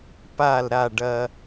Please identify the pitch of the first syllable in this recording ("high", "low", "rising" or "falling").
falling